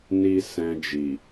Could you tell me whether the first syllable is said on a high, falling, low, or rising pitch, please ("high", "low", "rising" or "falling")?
high